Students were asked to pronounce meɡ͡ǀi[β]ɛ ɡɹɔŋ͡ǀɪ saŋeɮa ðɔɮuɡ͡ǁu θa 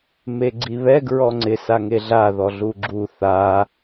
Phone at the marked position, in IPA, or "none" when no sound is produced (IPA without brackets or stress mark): β